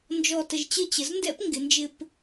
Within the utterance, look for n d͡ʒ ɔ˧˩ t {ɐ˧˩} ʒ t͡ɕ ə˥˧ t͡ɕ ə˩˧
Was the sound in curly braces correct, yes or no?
no